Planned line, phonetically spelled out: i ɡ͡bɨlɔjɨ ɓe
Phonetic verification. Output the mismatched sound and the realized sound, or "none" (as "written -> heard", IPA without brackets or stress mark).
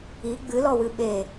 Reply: j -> w